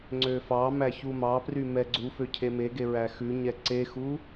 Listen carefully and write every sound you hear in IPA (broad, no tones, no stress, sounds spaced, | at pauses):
ŋ͡ǀ ø f ɑ m æ ç u m ɑ p r y m ɛ ɡ͡ǀ u f ø cʰ e m e ɡ e ɹ æ x ʉ ɲ ɛ ǀ e x u